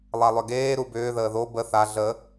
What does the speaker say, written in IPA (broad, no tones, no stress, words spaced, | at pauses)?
lˠalˠʏɡeː ɾubʏː ðəːðo bə θa ɮə